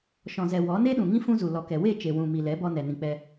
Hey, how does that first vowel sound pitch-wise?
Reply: low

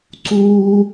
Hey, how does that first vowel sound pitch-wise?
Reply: high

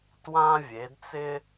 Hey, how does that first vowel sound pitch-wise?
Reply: high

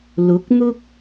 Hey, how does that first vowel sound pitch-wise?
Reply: rising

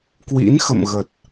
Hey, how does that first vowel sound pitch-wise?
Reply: rising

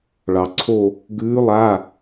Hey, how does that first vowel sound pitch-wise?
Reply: low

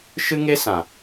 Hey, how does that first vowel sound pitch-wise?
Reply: high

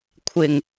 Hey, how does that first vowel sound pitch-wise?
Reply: low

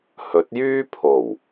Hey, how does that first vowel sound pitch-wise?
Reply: rising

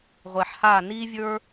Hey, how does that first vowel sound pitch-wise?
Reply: low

